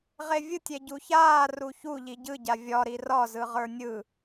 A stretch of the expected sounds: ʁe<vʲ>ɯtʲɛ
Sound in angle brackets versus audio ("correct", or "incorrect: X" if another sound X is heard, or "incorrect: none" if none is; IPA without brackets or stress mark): correct